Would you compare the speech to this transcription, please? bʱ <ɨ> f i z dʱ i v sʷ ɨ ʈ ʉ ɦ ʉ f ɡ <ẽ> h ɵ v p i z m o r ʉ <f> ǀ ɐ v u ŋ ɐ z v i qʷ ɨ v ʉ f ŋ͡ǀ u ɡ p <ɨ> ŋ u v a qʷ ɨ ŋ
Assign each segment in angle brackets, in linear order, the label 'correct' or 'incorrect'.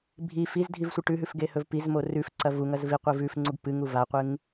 incorrect: i, incorrect: e, correct, correct

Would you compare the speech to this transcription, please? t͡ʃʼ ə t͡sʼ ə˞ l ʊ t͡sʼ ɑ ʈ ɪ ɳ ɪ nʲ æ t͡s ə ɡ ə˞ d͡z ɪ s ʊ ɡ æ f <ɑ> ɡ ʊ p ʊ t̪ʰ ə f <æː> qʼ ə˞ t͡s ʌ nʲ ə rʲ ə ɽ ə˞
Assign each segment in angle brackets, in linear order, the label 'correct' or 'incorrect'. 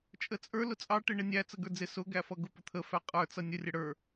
incorrect: ʌ, incorrect: æ

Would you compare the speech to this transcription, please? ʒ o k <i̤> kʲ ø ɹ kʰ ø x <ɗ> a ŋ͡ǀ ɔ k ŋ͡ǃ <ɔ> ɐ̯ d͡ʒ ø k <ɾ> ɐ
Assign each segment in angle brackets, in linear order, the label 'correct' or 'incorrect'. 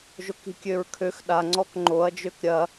correct, correct, incorrect: o, incorrect: ɾʲ

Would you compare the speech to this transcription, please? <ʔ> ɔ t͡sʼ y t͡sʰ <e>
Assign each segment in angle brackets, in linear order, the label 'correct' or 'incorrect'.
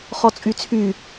incorrect: χ, incorrect: y

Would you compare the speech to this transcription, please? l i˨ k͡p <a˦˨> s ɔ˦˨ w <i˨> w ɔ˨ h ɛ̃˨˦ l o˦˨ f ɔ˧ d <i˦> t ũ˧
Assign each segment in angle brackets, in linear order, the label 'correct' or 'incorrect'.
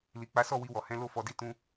incorrect: a˨˦, incorrect: i˧, correct

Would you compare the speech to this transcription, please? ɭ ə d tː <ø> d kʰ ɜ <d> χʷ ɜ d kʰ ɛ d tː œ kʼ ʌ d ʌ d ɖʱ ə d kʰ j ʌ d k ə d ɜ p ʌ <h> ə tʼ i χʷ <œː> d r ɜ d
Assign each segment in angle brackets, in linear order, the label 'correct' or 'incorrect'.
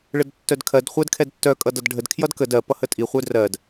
incorrect: œ, correct, correct, incorrect: œ

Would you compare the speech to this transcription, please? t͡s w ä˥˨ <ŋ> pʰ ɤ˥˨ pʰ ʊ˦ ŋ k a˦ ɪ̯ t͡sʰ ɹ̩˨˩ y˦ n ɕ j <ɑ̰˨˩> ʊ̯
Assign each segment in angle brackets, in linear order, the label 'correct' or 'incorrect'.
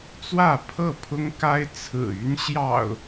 incorrect: none, correct

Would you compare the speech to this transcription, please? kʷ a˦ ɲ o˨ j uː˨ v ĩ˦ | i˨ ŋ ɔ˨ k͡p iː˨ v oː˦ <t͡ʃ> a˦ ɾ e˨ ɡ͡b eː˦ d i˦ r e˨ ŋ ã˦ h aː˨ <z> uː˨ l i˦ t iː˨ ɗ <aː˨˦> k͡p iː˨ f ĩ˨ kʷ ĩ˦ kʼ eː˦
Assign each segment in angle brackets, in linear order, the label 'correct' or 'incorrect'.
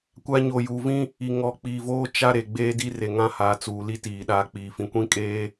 correct, incorrect: t͡s, correct

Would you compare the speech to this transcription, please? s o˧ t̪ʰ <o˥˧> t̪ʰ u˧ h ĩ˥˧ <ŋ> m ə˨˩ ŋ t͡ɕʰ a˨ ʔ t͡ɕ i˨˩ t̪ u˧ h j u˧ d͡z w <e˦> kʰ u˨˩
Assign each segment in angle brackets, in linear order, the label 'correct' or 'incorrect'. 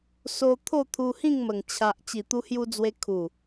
correct, correct, incorrect: e˧

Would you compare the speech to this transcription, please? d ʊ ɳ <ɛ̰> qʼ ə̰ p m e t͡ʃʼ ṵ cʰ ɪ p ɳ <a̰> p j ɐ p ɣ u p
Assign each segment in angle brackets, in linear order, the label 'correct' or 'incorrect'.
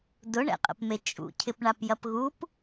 correct, incorrect: a

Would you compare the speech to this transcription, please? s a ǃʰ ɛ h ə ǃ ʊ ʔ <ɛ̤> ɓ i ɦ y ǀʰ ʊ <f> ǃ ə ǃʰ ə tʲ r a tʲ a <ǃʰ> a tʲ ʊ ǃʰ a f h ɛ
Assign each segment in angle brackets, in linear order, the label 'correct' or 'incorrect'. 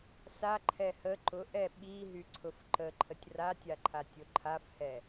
incorrect: ɛ, correct, correct

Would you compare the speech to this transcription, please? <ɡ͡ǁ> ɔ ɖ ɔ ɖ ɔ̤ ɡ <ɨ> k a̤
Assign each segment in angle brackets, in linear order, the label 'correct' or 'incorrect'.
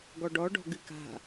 incorrect: ɡ, correct

